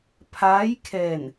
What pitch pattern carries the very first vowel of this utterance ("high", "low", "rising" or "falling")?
rising